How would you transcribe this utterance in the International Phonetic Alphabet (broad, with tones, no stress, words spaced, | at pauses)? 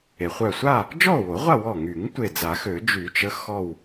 e˩χʷœ˧˩sʷa˥˨ | d͡ʒɔ˥˨o̯wo˨˩˦ʁʷa˥˨ wɔ˧˩ŋy˨˩˦ŋ tʷe˧˩d͡za˨˩˦xø˨˩˦ d͡ʒy˨˩˦t͡ʃə˨˥ xɔ˥˨w